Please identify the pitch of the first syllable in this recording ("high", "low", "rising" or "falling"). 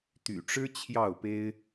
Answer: low